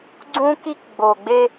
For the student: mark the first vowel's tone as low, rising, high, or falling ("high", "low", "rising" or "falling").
high